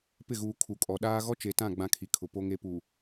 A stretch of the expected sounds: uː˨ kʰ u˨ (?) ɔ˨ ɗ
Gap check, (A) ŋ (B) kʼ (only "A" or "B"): B